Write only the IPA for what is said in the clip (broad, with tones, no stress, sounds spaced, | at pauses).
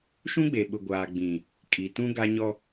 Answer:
ʃ ũ˦ ɡ͡b e˨ ɓ ʊ˨ ɡʷ aː˨ ɡ͡b ĩ˨ | kʼ i˨ t ũ˦ ɡ a˦ ɲ ɔ˦